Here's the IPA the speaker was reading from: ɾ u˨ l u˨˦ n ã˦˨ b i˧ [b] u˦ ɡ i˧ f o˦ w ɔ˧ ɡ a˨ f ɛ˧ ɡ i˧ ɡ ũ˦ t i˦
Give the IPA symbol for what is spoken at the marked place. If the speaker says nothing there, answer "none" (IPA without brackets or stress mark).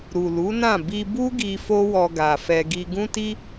b